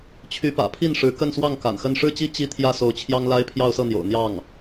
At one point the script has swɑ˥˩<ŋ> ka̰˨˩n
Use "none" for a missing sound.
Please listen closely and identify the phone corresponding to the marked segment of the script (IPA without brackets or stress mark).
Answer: ŋ